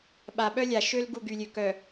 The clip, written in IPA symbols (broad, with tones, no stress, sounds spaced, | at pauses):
ɓ a˨ ɓ œ˦ lʲ a˨ ʃ ø˦ l ɡ u˦˨ ɡ y˨ lʲ ø˨ k œ˨